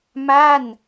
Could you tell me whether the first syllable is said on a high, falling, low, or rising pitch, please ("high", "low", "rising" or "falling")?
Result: falling